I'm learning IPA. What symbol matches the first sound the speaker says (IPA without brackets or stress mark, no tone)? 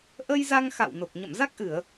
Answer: ʔ